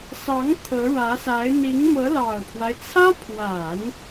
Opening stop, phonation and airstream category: aspirated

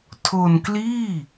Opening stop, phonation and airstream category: aspirated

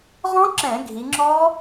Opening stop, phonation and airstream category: click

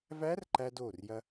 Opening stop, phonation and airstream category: click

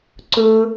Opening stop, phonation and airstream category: click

